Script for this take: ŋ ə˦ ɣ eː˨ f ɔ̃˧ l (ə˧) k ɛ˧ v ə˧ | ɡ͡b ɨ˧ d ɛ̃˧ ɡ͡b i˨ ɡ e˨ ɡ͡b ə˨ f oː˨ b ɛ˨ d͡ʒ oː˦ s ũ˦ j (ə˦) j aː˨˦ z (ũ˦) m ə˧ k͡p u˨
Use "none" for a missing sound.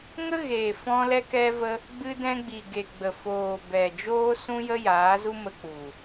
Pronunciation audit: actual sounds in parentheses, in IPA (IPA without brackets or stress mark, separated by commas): ɛ˧, ə˦, u˦